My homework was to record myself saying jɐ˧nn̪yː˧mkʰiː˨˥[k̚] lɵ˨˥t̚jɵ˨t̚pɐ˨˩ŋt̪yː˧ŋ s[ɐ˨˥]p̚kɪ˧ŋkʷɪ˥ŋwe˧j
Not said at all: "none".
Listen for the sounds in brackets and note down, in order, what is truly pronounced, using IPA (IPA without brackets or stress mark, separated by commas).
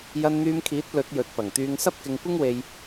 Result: t̚, ɐ˥